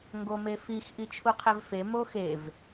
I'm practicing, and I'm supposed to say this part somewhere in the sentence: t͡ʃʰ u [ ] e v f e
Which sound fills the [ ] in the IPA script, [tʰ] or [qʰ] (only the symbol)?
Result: qʰ